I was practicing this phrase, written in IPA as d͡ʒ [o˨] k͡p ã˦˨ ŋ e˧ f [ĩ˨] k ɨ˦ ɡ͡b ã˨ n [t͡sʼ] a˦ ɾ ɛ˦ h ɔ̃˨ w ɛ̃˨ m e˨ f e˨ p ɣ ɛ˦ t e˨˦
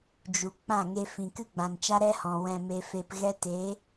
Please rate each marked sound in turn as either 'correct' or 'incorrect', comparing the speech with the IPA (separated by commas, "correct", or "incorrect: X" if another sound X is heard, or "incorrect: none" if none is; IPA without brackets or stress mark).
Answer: incorrect: u˨, correct, incorrect: t͡ʃ